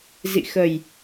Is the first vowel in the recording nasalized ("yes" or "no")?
no